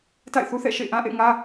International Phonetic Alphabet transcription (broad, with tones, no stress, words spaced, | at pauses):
ta̰˦˨ɪ̯ θu˦θɛ̰˦˨ʃḛ˦˨ɪ̯ʔã˦ ʔḛ˦˨ɪ̯ŋä˦